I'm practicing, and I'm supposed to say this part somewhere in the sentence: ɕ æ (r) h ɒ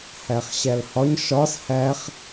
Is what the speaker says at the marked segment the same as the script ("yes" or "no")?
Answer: no